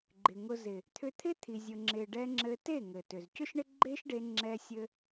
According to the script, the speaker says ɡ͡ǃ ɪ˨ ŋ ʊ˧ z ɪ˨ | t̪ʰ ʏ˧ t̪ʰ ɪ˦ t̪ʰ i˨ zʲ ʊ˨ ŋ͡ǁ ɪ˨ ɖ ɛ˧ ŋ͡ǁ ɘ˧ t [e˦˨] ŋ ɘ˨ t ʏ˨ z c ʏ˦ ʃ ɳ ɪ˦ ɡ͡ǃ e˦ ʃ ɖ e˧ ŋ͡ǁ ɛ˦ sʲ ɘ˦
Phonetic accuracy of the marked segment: correct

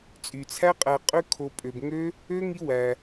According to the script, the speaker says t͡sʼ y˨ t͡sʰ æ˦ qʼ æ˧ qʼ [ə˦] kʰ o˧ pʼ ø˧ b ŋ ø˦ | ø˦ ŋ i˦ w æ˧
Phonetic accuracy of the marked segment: incorrect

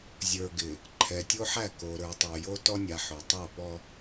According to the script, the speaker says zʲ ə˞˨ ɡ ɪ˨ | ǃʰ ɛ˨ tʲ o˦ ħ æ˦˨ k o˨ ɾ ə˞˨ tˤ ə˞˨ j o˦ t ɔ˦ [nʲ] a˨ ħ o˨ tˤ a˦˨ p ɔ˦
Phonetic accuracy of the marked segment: correct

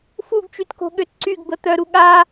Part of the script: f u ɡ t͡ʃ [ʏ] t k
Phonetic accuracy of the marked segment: incorrect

